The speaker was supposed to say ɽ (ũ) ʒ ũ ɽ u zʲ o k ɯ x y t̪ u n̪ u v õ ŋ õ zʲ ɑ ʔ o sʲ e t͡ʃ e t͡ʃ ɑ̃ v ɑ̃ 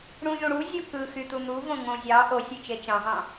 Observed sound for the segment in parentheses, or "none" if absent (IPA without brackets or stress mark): ũ